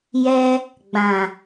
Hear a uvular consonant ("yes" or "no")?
no